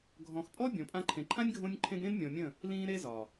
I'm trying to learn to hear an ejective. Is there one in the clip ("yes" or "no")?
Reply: yes